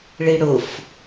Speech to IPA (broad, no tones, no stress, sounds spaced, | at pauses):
ɭ i ɽ ʊ f